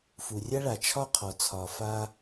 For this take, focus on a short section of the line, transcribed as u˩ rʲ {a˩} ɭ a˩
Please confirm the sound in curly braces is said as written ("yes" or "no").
no